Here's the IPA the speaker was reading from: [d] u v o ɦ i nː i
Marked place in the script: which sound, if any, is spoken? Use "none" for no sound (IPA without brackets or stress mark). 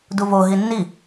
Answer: d